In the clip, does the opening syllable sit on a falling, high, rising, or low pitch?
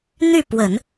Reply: falling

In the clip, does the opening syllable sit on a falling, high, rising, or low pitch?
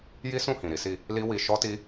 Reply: high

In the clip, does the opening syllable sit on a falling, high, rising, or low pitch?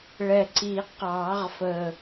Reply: low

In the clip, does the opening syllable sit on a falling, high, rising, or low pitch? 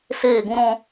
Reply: falling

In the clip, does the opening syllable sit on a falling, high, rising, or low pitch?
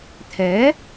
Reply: rising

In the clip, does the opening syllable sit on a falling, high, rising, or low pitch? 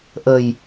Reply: low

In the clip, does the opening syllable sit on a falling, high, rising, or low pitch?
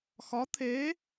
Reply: rising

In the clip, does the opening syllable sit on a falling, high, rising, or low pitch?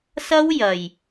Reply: high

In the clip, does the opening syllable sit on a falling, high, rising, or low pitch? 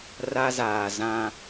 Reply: high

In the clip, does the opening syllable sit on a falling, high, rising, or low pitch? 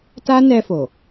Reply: high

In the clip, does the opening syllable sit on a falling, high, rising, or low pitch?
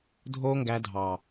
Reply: high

